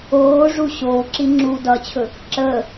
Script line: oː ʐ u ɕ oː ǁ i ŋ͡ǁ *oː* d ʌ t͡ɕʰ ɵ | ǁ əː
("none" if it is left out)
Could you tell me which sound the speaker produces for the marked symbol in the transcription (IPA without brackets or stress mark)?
uː